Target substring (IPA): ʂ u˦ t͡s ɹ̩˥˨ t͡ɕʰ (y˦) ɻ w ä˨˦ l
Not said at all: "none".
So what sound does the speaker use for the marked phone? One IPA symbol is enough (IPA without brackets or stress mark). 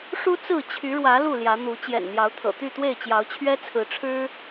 y˨˦